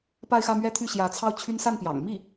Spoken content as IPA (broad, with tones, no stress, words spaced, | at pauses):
pa˥˧ɪ̯xä˥˧mɥɛ˥˧t̪ʰy˥˩ ɕjä˧˥t͡sʰɑ˥˩ʊ̯t͡ɕʰy˥n sa˥˩npjɑ̰˨˩ŋ mi˥˩